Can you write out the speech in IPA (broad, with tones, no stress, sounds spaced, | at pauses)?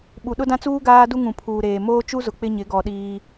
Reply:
ɓ u˨ ɗ ʊ˦ d ã˦ t͡s uː˦ ɡ aː˦ d u˦ ŋ ũ˨ pʰ uː˨ ɾ eː˨ m oː˦ t͡ʃ u˦ z ʊ˨ k͡p ɪ˦ ɲ ɪ˨˦ ɡ ɔ˨ ɗ iː˦